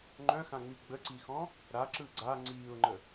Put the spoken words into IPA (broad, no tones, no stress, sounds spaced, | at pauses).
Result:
ŋ͡ǃ œ̃ x ã ŋ͡m i ɡ͡b ə ǀ i x ɔ̃ | ɾ a ǁ ɯ ɡ͡ǀ a ŋ͡ǀ iː ʊ̯ ŋ͡ǃ ə